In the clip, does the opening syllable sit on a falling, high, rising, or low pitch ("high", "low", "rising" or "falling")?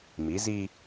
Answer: rising